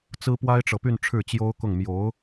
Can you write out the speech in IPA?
t͡s ɹ̩˥ p w a˥ ɪ̯ ʈ͡ʂ ɤ˨ p y˥˧ n ʈ͡ʂʰ ɻ̩˥˩ t͡ɕ j o˥ ʊ̯ k ʊ˥˩ ŋ m j o˧˥ ʊ̯

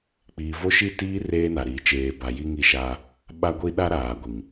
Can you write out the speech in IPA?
k͡p iː˨ v o˦ ʃ i˦˨ t iː˦ r eː˦ n a˨ ɾ iː˨ t͡ʃ eː˨ b a˨ j i˦ ŋ i˦˨ ʃ aː˦ | ɓ a˦ ɡʷ i˦ ɗ a˦ ɾ aː˨ ɡʷ i˨ ŋ

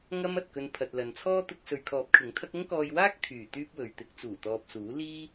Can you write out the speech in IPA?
ŋ ɐ˥ m ɐ˨ t̚ k ɵ˧ n pʰ ɐ˨ t̚ l ɐ˨ n t͡sʰ ɔː˥ t̪ ʊ˧ k̚ s ɵ˨ ɥ kʰ ɔː˨˥ p̚ kʰ ɪ˨˥ ŋ t̪ʰ ɐ˥ k̚ ʊ˥ ŋ k ɔː˧ j w aː˥ k̚ t̪ʰ yː˨˩ t̪ yː˥ p̚ w ɵ˨ ɥ t̪ ɪ˨˥ k̚ t͡s uː˨˩ t̪ ɔː˨ p̚ s uː˨˥ l iː˥

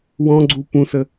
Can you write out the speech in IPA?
w ɔ̃ ɡ͡ǀ u p ũ s ə

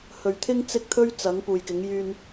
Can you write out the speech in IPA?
h ɵ˨ ɥ t̪ʰ ɪ˧ ŋ t͡s ɪ˧ k̚ t̪ʰ ɵ˧ ɥ t͡s ɐ˨˧ ŋ p uː˨ j k ɪ˨˧ ŋ j yː˧ n

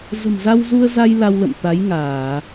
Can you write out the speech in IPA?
z ə̤˨˩ m z a˧ w z u˧ ə̯ z a˧ j l a˧ w l ə̰˧˨ m t̪ a˨˦ j ŋ aː˧˩˨

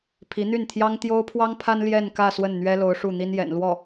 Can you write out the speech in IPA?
pʰ i˧˥ n̪ y˥˩ n t̪ʰ j ɑ˥ ŋ t̪ j o˥ ʊ̯ pʰ w ɑ˥ ŋ pʰ a˥ n l j ɛ˥˧ n k ä˥˧ s w ə˥˩ n n̪ ɥ ɛ˥ l o˧˥ ʊ̯ ʂ u˥˩ n̪ i˥ n j ɛ̰˨˩ n l w ɔ˥˩

